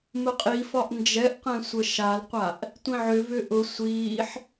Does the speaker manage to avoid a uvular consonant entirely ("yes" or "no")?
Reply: no